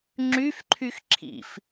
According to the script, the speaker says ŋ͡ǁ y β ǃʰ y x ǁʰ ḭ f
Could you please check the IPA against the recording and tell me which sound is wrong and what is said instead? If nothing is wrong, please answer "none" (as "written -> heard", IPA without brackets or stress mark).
β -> f